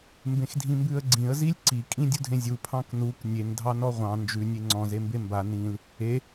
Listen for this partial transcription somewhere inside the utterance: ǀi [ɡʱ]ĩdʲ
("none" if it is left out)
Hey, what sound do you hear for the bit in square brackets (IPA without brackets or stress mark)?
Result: kʼ